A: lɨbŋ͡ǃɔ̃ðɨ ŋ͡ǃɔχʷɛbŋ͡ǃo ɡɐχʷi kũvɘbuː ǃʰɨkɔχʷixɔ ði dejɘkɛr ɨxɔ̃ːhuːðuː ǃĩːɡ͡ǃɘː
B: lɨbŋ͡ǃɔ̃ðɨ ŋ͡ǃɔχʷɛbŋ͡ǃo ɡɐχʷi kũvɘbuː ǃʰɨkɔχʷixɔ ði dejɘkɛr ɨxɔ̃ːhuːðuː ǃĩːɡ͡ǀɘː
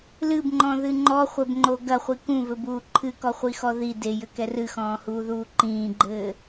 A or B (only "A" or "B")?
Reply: A